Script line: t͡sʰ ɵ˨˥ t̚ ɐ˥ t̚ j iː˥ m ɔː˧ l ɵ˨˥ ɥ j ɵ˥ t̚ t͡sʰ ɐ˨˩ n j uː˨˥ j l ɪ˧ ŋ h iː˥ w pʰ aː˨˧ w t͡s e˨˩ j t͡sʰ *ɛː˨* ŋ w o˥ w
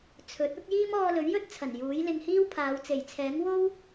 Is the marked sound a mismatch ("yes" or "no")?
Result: yes